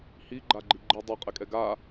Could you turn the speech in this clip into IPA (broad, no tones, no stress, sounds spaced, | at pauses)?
h i ɡ͡ǃ a ɡ͡ǃ i ɡ͡ǃ i dˤ ɛ qʼ ɛ kʼ ɛ ɡ a